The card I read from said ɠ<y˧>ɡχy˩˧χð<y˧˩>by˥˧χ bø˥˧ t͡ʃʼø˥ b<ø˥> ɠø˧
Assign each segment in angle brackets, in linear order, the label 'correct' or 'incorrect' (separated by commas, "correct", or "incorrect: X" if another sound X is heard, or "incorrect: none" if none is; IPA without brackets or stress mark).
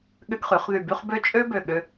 incorrect: ʏ˧, correct, incorrect: ø˧˩